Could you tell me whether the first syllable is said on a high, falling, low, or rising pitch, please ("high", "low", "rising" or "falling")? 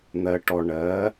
low